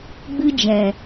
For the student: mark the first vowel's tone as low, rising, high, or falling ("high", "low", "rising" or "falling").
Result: high